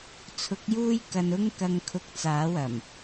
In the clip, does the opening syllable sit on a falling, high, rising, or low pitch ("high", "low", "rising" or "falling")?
rising